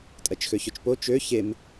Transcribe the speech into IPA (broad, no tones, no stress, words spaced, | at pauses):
tʼɜt͡ʃxøçøt͡ʃpo t͡ʃø çem